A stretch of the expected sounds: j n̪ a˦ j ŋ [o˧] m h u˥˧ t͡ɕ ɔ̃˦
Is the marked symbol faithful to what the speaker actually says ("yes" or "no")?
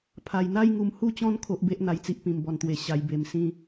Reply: no